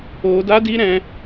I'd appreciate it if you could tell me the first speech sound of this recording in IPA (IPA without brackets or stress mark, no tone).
o